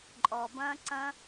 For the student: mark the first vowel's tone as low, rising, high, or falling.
low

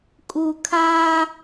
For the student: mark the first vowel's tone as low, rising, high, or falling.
low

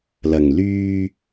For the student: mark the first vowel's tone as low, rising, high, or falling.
low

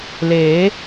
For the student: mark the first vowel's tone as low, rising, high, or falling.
rising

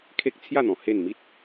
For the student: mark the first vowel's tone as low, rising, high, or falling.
high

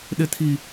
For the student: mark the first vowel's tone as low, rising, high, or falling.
low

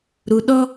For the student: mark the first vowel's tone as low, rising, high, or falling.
low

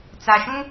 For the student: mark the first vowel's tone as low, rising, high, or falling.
low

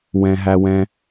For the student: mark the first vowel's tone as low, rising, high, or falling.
low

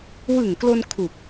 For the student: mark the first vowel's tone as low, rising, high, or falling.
low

